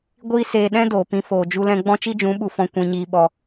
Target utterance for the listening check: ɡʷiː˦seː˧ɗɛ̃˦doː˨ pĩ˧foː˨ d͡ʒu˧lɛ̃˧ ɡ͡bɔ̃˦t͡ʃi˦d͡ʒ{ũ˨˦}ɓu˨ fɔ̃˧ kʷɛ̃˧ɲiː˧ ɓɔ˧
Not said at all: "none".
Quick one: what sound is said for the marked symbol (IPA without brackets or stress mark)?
ũ˨˦